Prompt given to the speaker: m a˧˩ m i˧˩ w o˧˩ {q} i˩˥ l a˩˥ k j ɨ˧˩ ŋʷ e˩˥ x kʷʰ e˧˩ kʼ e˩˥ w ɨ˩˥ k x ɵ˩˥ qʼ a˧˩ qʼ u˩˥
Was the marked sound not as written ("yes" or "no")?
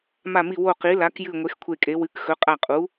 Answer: no